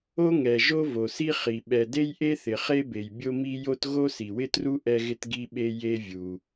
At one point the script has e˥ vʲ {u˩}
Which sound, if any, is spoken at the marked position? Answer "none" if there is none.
u˩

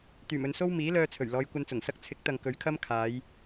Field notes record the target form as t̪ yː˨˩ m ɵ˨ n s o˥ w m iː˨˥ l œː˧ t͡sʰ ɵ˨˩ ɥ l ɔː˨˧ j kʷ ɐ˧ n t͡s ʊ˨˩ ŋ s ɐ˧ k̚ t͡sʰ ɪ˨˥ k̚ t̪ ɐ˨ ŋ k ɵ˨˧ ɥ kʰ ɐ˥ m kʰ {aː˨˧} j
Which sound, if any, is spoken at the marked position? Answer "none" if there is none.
aː˨˧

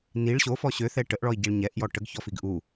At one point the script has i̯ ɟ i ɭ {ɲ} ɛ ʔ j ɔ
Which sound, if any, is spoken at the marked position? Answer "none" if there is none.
ɲ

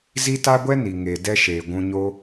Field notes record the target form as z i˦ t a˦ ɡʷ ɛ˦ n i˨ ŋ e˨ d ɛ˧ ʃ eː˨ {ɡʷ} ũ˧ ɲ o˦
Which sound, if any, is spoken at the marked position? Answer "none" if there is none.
ɡʷ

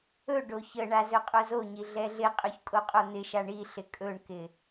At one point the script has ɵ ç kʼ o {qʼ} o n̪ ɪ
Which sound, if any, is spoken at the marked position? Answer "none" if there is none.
qʼ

